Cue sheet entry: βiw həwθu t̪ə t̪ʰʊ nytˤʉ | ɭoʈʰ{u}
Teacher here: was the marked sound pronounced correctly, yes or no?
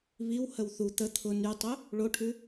no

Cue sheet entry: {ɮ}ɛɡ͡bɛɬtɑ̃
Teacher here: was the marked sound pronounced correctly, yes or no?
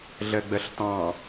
yes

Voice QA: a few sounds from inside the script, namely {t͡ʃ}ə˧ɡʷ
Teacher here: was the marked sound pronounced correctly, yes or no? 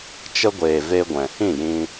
yes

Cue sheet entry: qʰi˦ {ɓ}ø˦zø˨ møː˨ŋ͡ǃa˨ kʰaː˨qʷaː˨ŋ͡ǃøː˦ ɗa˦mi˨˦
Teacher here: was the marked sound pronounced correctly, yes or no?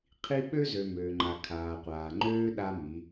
yes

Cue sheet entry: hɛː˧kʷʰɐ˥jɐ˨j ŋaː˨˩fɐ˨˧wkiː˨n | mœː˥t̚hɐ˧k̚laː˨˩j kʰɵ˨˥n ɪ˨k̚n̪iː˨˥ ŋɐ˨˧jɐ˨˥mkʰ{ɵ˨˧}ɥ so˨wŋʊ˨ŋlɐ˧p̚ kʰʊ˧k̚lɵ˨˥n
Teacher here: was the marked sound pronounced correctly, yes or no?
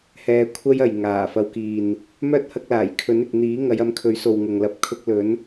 no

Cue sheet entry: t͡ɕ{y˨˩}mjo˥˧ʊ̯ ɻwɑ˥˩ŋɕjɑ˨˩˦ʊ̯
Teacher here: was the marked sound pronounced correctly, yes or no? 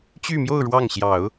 no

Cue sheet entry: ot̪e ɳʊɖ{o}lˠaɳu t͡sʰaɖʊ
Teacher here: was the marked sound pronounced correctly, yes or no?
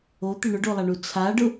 yes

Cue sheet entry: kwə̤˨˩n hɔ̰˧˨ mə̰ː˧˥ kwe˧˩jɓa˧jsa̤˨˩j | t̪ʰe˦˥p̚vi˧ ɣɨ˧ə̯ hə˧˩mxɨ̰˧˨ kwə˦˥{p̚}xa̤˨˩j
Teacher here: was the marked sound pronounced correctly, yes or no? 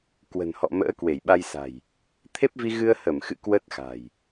no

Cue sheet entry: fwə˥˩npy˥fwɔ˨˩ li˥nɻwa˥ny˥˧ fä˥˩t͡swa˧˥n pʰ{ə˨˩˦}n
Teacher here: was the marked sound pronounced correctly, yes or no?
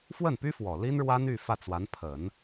yes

